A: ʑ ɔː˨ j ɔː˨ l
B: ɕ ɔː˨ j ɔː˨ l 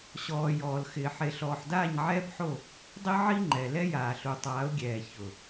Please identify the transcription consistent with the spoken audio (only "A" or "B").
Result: B